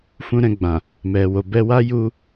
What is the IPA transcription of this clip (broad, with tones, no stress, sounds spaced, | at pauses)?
f ũ˧ ɾ ɛ̃˧ ɡ͡b ã˨ | m ɛ˨ w o˨ b ɛ˧ w a˦ j u˧